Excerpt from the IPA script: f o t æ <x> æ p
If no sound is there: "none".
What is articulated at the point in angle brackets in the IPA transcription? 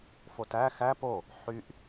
x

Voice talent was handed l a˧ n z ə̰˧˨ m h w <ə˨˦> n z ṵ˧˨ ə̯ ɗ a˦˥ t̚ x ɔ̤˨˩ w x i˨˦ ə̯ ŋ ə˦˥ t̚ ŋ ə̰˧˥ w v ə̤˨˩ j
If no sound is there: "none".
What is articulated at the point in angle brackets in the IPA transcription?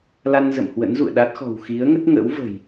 ə̰˧˥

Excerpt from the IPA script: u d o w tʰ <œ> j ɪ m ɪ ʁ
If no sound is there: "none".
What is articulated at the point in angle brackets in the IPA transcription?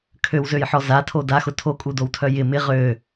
œ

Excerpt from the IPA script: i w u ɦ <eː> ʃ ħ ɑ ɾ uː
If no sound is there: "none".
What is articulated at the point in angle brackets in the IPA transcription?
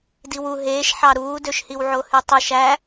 eː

